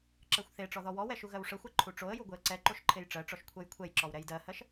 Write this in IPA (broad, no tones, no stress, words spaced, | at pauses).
ǁɜxʷθeʈ͡ʂɔ ðɔwɔwɛ ʃuɣɜwʂəxʷɛ ǃʰuʈ͡ʂoə̯ju ɡʷeə̯ǀɛǃoʃ ǃʰejʈ͡ʂɜʈ͡ʂɔʃ kʷʰɜjkʷʰɛjǁɔw ɾɛjdɜhɜʃ